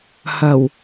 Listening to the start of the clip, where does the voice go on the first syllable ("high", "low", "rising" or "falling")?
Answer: low